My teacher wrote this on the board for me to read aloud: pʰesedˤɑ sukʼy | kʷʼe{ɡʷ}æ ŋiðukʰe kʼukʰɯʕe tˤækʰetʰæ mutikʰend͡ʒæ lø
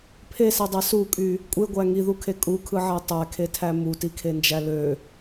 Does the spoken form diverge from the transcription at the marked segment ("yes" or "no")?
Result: no